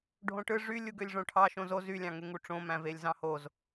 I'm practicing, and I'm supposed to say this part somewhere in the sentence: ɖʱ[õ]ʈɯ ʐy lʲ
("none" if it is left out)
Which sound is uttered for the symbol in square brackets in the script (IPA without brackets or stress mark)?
õ